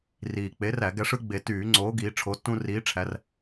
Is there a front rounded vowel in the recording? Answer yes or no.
yes